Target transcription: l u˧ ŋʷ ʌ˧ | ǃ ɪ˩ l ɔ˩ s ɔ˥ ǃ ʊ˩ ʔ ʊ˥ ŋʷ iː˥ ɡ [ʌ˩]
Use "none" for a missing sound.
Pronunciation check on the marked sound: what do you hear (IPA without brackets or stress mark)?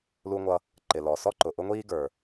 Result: ə˞˩